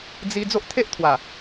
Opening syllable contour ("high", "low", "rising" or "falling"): high